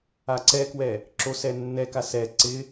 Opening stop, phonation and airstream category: click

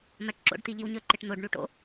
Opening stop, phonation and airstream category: plain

